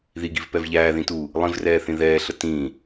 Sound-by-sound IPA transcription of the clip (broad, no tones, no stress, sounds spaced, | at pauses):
ð i ɡ i v p ɛ v ʎ æː ð ĩ t uː | lˠ ĩ v r ɛː θ ĩ ð ɛː ɬ ə t ĩː